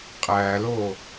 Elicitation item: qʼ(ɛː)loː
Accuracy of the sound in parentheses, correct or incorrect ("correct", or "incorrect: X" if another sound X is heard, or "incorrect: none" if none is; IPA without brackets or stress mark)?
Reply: incorrect: æː